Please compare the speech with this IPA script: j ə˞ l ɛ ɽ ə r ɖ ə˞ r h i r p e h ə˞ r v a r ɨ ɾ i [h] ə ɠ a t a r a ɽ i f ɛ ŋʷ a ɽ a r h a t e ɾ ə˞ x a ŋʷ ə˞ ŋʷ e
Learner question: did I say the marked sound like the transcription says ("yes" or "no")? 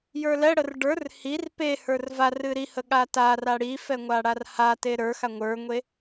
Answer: yes